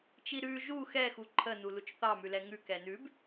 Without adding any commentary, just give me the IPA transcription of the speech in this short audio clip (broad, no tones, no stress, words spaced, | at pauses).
t͡ʃiɾʉ ʒu xɛxu ǃʰənu lut͡ʃθɑmʉ lɛŋʉ kɛnʉb